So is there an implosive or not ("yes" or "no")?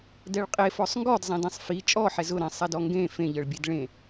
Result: no